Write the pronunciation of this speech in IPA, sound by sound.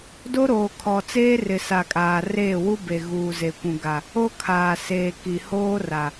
d o˦ ɾ oː˨ kʰ ɔ˨ t͡s eː˦ r ɪ˨ s a˨ kʼ aː˨ r eː˦˨ w u˦ b e˨ ɣ uː˨ z e˨ kʷ ũ˨ ɡ a˨ | o˦ kʰ aː˨ s eː˨ k i˨ h oː˦ r a˨

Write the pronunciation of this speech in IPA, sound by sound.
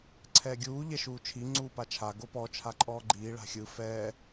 ǀʰ ɛː ɡʲ uː ʎ ɛ ʃ uː t͡ʃʰ i ŋ͡ǀ uː p a t͡ʃʰ a ɡ o p ɔ t͡ʃʰ a ǃʼ ɔː ɡ͡ǃ iː ɭ a̤ xʲ ɯ f ɛː

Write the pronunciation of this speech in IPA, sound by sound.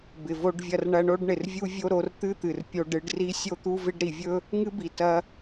b ɪ˨ v o˧ ɖ vʲ ɐ˧ r ɳ ɐ˧ ɳ o˦ ɖ ɳ ɪ˨ r vʲ u˦ vʲ o˦ ɾ o˧ r t̪ ɨ˦ t̪ ɨ˨ r pʲ o˧ ɖ ɨ˧ ɖ r i˦ sʲ o˧ t̪ u˧ v ɪ˧ ɖ ɾ i˨ vʲ ɵ˦ | ŋ ɨ˦ b i˨ t ɐ˧

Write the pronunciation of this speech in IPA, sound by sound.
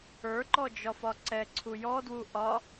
ə˞ ǃ ɔ d͡ʒ ɒ f ɒ ǀ ɛ ǀʰ u j ɔ d w u ʔ ɒ

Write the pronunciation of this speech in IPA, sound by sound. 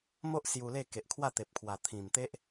m o˦ ʔ s j u˧ l e˥˧ k e˨ ʔ kʰ w a˥˧ t̪ e˨ p̚ kʰ w a˨˩ t̪ʰ ĩ˨˩ m t̪ e˦ ʔ

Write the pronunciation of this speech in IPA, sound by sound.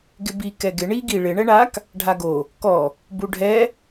ɡ ɪ b i k ɛ ɡ ɪ ɳ i ɡ i ɭ ɪ ɳ ɛ ɳ a k | ɖʱ a ɡ o | k ɔ | b u ɖʱ ɛ

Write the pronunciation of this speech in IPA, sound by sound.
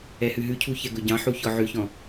ɛ h ʉ ɦ ʉ cʰ u ç ɛ ɡ ɵ ɟ ɑ̃ ħ u ç ɔ ʕ ʉ ç ɔ̃

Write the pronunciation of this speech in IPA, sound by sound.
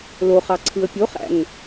l o χ ɑ ǀʰ ɯ ə̯ pʲ o χ æ̰ ŋ

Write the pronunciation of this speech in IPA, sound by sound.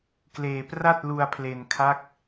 k l eː˧ p r a˥˩ t̚ l u˧ a̯ pʰ l e˧ n kʰ a˦˥ k̚

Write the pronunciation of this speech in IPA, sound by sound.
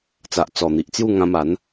t͡s a˨ ʔ t͡s ɔ˨˩ n̪ i˨ ʔ t͡s j u˥˧ ŋ ã˧ m a˨˦ n

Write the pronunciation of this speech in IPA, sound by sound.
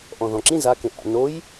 ʔ ɔ̃ ð ɔ̃ ǁ ĩ z a k ẽ ʔ a̰ n o j

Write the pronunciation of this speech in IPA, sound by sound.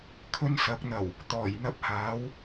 kʰ ɵ˥ n s ɐ˨˥ k̚ n̪ ɐ˨˩ w | t̪ ɔː˨˩ j n̪ ɐ˥ p̚ h aː˨˥ w

